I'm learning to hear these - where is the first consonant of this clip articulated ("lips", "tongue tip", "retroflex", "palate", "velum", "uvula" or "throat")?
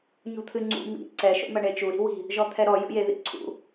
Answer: palate